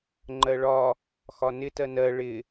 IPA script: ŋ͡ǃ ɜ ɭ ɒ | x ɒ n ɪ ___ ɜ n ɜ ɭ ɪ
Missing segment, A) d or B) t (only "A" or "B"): B